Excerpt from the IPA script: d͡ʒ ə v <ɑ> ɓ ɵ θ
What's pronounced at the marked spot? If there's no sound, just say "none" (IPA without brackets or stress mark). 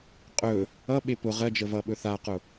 ʌ